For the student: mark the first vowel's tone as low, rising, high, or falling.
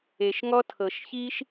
low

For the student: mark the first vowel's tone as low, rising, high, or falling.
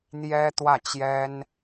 high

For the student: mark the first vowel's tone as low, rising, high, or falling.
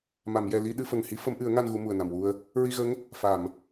low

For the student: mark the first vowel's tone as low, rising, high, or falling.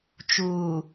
low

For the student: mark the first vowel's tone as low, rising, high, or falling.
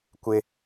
high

